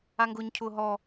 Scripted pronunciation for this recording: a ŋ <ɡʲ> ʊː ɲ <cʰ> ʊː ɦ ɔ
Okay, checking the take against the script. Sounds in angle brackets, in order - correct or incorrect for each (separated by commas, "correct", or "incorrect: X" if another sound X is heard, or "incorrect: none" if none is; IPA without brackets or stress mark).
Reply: incorrect: ɡ, correct